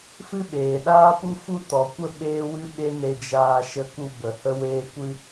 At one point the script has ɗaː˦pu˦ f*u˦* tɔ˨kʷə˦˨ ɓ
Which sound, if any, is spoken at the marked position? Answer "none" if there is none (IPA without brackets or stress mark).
u˦